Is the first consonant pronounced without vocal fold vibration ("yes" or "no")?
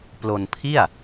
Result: yes